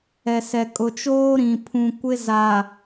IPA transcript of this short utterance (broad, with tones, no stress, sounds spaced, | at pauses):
ɛ˨ s ɛ˨ kʼ ʊ˨ t͡ʃ oː˦ ɾ ĩ˨ pʰ ũ˨ kʷ ɪ˦ z a˨